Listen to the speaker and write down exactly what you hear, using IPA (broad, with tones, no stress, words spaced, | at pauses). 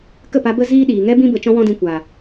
kə˦˨pa˧ bə˦ ziː˦ ɗiː˨ŋɛ˦bĩ˦ bə˧t͡ʃɔ̃˦wɔ̃˦ dĩ˧kʷa˨